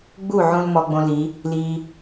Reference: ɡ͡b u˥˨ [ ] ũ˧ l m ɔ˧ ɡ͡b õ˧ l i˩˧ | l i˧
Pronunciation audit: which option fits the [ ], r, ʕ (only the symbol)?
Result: ʕ